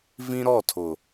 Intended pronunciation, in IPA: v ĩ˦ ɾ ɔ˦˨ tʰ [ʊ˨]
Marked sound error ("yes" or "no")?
no